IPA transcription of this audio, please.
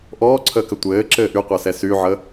ʔ ɔː ǀʰ əː k ə tʷ ɘː ǁ ɘː ʔ y qʷ əː s ɛ s y ʕ ə

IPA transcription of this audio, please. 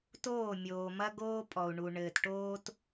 t oː˦˨ mʲ oː˨ m ɐ˦ ɡ oː˦ pʼ ɔ˨ u̯ ɳ u˨ ɳ ɘː˨ t ʈ oː˦ t

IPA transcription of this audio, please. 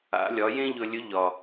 a̰˩˧ lʲ ɒ˩˧ j ẽ˥ ʎ ɵ˧ lʲ ɵ˧˥ ʎ ɒ˩

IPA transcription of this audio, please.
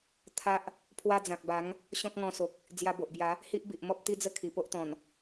t̪ʰ a˦ ʔ | pʰ w a˦ d͡z ã˨ k̚ b a˨˦ ŋ | ɕ ɔ̃˦ k̚ ŋ ɔ̃˧ s o˨ k̚ | d͡z j a˧ b o˨ ʔ b j a˨˦ | h i˦ ʔ b i˨ ʔ m ɔ˦ p̚ t̪ i˦ d͡z ə˥˧ kʰ i˨˩ p o˦ ʔ t̪ ɔ̃˨˩ n

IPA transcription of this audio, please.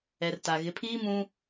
ɛ˨ r t a˨ ɣ ɪ˨˦ pʰ iː˦ m ũ˦

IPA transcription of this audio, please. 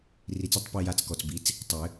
r i˨˩˦ t͡s ɐ˥˩ tˤ p i˥˩ j a˥˩ t͡s k ɔ˨˩ t͡s b i˩˥ t͡s | tˤ ɘ˨˩˦

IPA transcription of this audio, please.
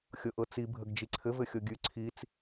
xʲ ɤ ʔ ɤ t͡s i bʱ ə ɡ d͡ʒ i ǀʰ ɘ v ɘ xʲ ɤ ɡʲ ʉ ǀʰ i t͡s

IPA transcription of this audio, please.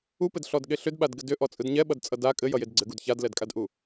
u p ɘ d ɬ ɔ d ɠ e ɬ ʏ d ɓ a d ɡ ɘ d ʏ ʔ ɔ t͡sʼ ɯ d ɲ ɛ ɓ ʌ d t͡sʼ ʌ d a kʼ ɘ j ʌ j e d ɡ͡ǀ ɘ ɡ u d ç a d l ɛ d kʼ a d ʔ u

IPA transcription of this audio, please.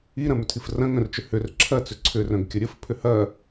i ɾ ɐ̃ m ʏ tʰ i f r ɐ̃ ŋ œ̃ r t͡ʃ ʏ h ʏ r ǁʰ ɐ t͡s ʏ ǀʰ ʏ r œ̃ ɡ kʲ ə ɾʲ ə f pʰ ʏ h ɐ

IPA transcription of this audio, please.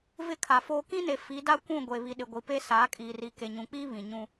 v ɪ˦ kʰ a˨ f oː˦ k ĩ˦ n e˨ f i˨˦ d a˦ kʷ ũ˦˨ ɡʷ e˨ β i˨ ɗ ɪ˨ ɡʷ i˨ p e˦ s aː˨˦ kʼ iː˨ r i˨ k e˨ ɲ ũ˨ k͡p iː˦ β ĩ˨ ɲ ũ˦

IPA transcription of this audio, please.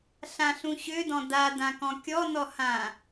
ɬ ã ɬ ũ ɕ ø d ɔ̃ d a d ã k ɔ̃ kʲ ɔ n ɔ h ã

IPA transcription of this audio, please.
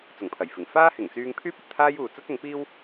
t͡s ʊ˨˩ ŋ pʰ ɐ˨˩ j f ɪ˨˩ ŋ f aː˥ h ɪ˨˩ ŋ t͡s yː˧ ŋ pʰ yː˥ p̚ ɐ˨ t̚ t̪ʰ aː˥ j uː˨ t͡s ɐ˥ t̚ ʊ˨˥ ŋ p iː˥ w

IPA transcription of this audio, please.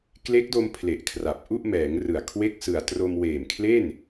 k l e˦˥ k̚ d o˧ m pʰ l e˨˩ ʔ kʰ r a˨˩ p̚ ʔ u˥˩ ʔ m ɛː˩˦ ŋ r ɯ˨˩ a̯ kʰ w e˥˩ k̚ s ɯ˨˩ a̯ t r o˧ m w eː˨˩ m kʰ l e˥˩ n

